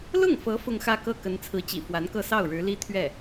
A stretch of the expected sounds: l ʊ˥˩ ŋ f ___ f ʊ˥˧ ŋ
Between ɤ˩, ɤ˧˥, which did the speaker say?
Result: ɤ˧˥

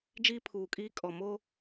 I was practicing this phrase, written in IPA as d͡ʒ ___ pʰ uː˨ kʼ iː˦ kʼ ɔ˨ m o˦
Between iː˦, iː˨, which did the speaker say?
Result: iː˦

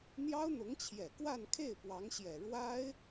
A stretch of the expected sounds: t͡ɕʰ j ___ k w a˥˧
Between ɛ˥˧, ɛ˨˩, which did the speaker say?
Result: ɛ˨˩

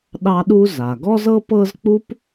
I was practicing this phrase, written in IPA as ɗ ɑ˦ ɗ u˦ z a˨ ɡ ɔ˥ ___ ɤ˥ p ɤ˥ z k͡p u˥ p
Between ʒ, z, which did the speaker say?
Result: z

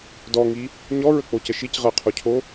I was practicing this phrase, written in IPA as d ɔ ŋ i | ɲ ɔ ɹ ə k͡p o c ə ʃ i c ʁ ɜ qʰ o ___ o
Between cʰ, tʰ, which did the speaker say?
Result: cʰ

